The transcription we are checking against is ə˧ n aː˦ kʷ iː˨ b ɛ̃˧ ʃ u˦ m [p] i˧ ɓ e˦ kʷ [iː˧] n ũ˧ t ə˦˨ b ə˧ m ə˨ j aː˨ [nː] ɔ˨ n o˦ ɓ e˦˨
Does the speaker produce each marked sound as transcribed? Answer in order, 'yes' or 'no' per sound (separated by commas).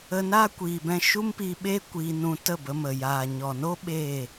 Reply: yes, yes, no